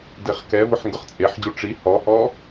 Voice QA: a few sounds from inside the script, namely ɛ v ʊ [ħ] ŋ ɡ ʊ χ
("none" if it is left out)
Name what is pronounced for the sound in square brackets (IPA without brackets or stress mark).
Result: ħ